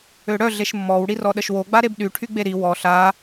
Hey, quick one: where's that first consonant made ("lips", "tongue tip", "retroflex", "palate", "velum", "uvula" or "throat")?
retroflex